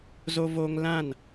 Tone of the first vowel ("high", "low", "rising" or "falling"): high